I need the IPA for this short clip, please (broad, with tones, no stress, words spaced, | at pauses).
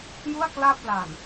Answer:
ju˥˩a̯ kla˥˩p̚ laː˨˩n